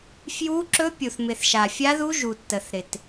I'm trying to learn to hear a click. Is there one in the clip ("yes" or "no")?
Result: yes